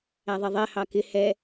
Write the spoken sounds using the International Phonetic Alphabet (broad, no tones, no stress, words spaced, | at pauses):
æðˤɛðˤɛ hɑkɪ hɛ